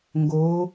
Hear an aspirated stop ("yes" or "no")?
no